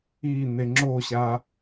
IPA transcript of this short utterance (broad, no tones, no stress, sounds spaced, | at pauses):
i n̪ e ŋ͡ǁ o ɕ a